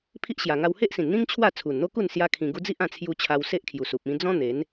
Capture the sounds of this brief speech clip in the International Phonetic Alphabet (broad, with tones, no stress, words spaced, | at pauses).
pʰi˦ʔɕja˨˩ ŋa˧whe˦ʔsĩ˨˩nn̪ĩ˦ŋ t͡ɕʰwa˥˧ t͡sʰu˨˩nn̪o˦ku˥˧n sja˦kʰĩ˧ɡu˦ d͡zi˦ʔã˧t͡sʰju˧ t͡ɕʰa˧wse˦ʔkʰju˨˩su˨p̚ ĩ˧d͡zɔ̃˦ n̪e˨˦n